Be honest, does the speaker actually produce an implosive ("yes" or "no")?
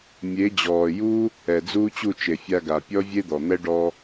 no